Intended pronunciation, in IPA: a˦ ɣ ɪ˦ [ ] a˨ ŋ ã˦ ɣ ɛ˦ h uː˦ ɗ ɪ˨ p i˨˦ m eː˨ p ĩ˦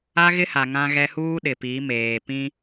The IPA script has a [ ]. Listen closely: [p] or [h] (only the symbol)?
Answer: h